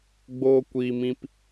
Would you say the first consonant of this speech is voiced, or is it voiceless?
voiced